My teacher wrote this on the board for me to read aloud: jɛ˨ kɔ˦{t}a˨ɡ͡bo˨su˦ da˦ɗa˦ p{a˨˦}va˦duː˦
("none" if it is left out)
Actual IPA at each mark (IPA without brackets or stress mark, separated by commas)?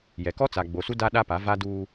t͡s, a˨˦